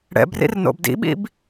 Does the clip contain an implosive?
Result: yes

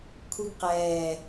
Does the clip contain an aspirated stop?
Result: yes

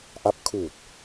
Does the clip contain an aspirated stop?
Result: yes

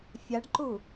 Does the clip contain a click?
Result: yes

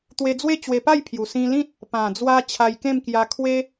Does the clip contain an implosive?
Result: no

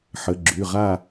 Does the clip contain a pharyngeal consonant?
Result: yes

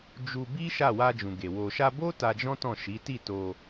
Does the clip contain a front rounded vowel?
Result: no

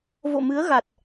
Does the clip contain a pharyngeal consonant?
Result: no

